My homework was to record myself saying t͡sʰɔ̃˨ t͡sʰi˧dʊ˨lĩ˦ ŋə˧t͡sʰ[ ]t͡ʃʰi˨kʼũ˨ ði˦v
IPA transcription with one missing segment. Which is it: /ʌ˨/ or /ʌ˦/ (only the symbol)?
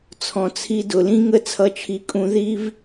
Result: ʌ˨